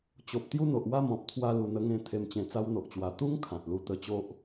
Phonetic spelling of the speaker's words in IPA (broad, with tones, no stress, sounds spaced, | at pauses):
t͡ɕ o˨ p̚ t̪ j u˥˧ n̪ o˨ ʔ w a˥˧ m ɔ̃˨ p̚ t̪ʰ w a˧ l u˨˩ n̪ ə˧ ŋ ẽ˧ t̪ʰ e˨˩ m t͡ɕ ẽ˨˩ t͡s a˧ w n̪ o˨ ʔ t͡ɕ w a˨˩ t̪ u˦ ŋ kʰ ã˨ t̚ l u˧ t̪ ə˧ t͡ɕ o˦ ʔ